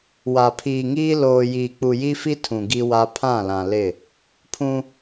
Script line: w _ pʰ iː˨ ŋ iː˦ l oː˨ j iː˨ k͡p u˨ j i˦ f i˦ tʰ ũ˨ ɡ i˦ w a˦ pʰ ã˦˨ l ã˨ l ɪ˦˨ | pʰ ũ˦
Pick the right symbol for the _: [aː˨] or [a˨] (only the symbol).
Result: a˨